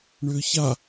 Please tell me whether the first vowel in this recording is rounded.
yes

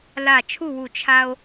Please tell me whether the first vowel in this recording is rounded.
no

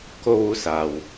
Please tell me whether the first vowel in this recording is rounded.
yes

